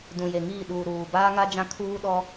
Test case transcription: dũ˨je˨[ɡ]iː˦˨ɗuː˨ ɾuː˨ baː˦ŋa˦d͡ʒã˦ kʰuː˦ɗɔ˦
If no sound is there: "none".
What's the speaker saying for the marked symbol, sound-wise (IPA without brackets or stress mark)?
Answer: ŋ